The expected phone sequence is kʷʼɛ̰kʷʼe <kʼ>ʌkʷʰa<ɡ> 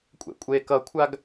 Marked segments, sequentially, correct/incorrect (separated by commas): incorrect, correct